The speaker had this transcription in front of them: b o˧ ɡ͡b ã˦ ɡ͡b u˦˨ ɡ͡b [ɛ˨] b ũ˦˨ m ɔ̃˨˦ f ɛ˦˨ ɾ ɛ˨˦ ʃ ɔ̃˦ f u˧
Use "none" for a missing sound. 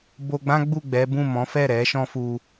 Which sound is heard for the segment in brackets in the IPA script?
ɛ˨˦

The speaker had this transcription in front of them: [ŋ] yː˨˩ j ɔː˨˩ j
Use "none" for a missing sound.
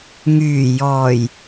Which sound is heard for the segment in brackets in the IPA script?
ŋ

